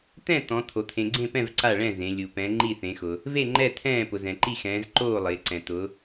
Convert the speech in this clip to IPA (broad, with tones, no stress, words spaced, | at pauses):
t̪ɛ̃˥˨ t̪ɔ̃˨˦ t̪ʰo˨ t̪ʰẽ˨ɡ͡ǀẽ˥˨pɛ̃˥˨v ǀa˥˨ɭɛ̃˥˨ zẽ˨˦ lʲu˨pɛ̃˨˦ ŋ͡ǃi˥˨θẽ˨˦xʊ˨ | ve˥˨ŋ͡ǃɛ˥˨ t̪ʰɛ̃ː˥˨pʊ˨ zɛ̃˨ǃi˥˨xɛ̃ː˨˦z ǃoː˥˨ lˠɪː˨˦ǀɛ̃˨ t̪ʊ˨˦